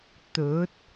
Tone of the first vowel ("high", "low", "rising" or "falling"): rising